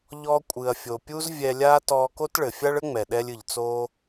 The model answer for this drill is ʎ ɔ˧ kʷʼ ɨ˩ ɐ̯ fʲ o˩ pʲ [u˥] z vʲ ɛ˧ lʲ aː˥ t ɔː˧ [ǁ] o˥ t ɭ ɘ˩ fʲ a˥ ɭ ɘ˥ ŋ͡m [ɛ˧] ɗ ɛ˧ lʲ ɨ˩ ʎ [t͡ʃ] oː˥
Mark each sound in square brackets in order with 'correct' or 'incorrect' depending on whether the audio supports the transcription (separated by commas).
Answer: correct, incorrect, incorrect, incorrect